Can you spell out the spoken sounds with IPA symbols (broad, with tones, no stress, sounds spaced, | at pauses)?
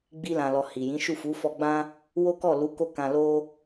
ɡ͡b i˧ l ã˨ l ɔ˨ h i˨ j ĩ˨˦ ʃ u˦˨ f u˨˦ f ɔ˧ ɡ͡b ã˦ | w o˦ k ɔ˦˨ l u˨˦ k o˦˨ k ã˧ l o˧